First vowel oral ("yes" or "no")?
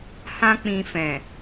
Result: no